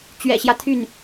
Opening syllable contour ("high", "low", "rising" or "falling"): low